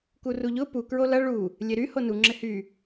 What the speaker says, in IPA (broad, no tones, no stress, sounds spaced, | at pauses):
k u r u ʎ ʊ p u k ɹ o l ɐ ɭ u | lʲ e ɾ y h o n u ŋ͡ǁ ɪ h y